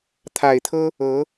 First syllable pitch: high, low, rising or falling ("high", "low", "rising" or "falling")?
low